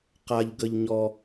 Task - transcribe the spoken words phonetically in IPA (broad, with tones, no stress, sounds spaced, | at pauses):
q a˥ ʎ ɡ ə˥ ʎ ɲ ɔ˥